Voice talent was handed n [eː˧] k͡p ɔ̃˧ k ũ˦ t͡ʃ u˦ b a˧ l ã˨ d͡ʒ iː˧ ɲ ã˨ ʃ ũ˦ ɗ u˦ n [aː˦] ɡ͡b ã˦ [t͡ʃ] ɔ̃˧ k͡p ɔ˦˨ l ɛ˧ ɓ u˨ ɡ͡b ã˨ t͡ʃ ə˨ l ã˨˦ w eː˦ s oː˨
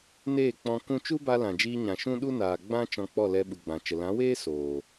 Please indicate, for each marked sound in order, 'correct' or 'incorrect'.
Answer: incorrect: eː˦˨, incorrect: aː˨, correct

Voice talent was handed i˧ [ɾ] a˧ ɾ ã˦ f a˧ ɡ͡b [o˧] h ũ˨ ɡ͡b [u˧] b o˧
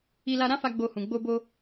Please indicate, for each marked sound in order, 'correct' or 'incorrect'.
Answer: incorrect: l, correct, incorrect: o˧

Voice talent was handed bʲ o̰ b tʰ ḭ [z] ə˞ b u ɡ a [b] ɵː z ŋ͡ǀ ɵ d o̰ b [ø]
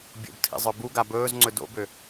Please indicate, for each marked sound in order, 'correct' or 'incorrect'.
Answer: incorrect: zˤ, correct, correct

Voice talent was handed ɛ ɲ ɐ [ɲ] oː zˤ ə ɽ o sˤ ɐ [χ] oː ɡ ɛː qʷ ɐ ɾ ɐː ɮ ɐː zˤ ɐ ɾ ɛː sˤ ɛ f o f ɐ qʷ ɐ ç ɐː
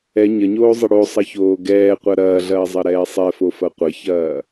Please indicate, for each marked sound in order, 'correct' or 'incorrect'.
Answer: correct, incorrect: ç

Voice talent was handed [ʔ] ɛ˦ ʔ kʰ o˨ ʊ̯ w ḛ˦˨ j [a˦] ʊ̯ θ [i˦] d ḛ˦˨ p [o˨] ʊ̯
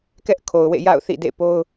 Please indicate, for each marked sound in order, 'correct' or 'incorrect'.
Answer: incorrect: k, incorrect: a̰˦˨, incorrect: ḭ˦˨, incorrect: o˦

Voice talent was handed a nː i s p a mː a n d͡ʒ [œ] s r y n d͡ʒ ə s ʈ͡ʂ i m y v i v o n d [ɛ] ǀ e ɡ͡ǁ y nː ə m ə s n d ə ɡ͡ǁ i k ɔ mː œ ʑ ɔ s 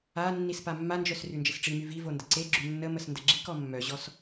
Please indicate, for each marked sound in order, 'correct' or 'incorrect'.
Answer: correct, incorrect: ə

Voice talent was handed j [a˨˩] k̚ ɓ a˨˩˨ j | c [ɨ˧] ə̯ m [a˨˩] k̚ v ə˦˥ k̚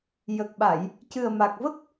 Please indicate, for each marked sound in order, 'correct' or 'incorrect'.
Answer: incorrect: ə˨˩, incorrect: ɨ˨˩, correct

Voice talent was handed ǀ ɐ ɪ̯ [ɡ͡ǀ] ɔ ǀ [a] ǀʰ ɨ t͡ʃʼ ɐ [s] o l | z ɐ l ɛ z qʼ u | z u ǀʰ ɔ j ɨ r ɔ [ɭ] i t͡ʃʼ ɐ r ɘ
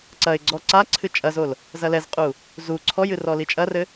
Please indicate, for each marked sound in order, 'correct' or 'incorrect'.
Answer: correct, correct, incorrect: z, incorrect: l

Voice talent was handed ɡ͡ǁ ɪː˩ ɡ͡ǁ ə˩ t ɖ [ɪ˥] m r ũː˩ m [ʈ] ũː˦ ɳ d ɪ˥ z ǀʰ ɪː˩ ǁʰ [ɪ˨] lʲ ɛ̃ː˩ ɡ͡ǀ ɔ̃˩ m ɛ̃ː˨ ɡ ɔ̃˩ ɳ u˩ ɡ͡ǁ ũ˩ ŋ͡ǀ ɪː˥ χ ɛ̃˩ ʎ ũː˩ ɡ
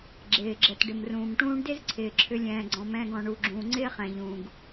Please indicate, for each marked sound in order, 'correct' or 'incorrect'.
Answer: incorrect: ɪ˩, correct, incorrect: ʏ˨

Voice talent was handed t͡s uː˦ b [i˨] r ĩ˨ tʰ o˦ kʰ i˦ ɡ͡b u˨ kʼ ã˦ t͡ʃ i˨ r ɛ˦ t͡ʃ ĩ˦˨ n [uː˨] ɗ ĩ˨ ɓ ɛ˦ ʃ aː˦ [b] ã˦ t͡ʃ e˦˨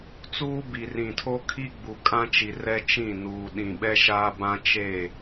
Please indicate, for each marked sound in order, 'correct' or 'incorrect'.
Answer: correct, correct, correct

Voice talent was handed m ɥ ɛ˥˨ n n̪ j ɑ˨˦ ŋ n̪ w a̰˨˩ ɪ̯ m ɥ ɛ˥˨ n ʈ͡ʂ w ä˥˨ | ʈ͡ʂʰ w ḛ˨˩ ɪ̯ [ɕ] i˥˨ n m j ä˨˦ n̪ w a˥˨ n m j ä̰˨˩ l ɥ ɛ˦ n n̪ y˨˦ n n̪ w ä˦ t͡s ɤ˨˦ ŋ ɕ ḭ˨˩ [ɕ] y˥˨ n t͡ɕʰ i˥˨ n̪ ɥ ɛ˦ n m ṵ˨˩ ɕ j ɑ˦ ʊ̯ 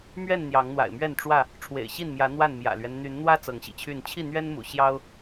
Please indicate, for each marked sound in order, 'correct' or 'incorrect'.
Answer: correct, incorrect: t͡ɕʰ

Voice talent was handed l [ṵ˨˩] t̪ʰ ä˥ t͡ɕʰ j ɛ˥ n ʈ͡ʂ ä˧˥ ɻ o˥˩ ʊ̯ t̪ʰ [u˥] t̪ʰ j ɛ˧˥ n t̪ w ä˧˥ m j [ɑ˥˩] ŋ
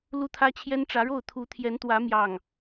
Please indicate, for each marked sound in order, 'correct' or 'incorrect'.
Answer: incorrect: u˥, incorrect: u˧˥, correct

